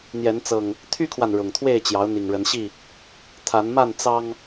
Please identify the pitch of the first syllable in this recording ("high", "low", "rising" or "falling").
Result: rising